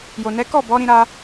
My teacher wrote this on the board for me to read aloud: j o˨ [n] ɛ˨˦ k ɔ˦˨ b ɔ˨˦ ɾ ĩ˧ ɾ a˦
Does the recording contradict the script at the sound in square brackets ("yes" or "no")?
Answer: no